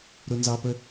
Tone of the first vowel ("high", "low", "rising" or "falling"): high